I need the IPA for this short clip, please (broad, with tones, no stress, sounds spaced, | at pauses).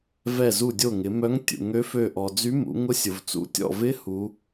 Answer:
v ɛ˧˩ z u˧˩ dʲ o˧˩ ŋ ɪ˩˧ m œ˧˥ ŋ tʲ ṵ˩ ŋ ø˧˥ f ø˧˩ ʔ ɔ˩ d͡z y˧˥ m ṵ˩˧ ŋ ʊ˧˥ sʲ ʊ˩ v t͡s ṵ˧˥˧ tʲ ɔ̰˧˩ v ɪ˧˥ h u˩˧